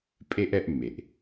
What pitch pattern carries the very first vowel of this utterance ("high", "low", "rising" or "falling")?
high